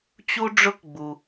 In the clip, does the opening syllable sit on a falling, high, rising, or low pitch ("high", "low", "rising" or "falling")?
high